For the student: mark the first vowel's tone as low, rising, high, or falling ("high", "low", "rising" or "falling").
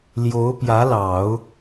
rising